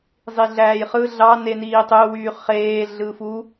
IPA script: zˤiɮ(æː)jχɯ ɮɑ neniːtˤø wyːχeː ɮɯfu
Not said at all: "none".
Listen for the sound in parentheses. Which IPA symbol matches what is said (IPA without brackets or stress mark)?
æː